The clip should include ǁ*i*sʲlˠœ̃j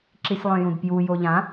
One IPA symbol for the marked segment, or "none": i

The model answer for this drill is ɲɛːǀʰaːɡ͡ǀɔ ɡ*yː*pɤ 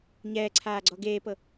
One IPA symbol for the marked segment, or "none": eː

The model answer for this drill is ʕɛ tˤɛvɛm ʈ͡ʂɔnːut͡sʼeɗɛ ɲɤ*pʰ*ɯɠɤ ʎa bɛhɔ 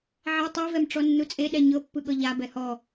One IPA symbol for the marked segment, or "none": pː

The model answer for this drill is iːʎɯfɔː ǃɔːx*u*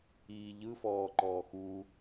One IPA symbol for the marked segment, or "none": u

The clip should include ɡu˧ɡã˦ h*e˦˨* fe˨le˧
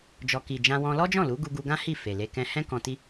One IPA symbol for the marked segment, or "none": i˦˨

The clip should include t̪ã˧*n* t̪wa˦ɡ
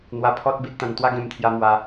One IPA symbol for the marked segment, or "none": n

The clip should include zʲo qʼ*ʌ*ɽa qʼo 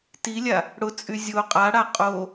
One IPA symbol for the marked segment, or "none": a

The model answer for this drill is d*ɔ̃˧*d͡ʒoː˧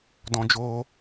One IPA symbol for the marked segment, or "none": ɔ̃˧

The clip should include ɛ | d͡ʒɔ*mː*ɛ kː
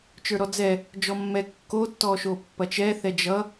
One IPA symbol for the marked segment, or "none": mː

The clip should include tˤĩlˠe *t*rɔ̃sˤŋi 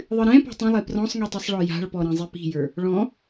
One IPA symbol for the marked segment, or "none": p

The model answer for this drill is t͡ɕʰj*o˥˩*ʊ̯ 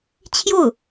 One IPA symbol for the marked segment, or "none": o˥˩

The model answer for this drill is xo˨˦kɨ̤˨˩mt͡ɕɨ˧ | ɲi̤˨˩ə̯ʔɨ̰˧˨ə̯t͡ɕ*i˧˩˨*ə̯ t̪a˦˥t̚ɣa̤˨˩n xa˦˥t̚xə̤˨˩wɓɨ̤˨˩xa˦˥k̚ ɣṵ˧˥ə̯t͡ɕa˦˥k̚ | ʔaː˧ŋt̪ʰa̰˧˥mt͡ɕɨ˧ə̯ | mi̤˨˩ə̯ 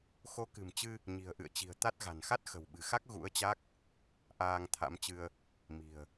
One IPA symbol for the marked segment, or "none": i̤˨˩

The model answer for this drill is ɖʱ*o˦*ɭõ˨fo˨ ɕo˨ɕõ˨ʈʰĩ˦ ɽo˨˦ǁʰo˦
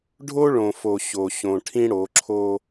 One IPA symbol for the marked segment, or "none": o˦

